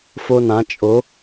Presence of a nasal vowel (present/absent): present